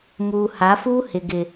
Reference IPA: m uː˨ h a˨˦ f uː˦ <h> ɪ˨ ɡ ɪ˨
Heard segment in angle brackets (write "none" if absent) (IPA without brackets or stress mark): h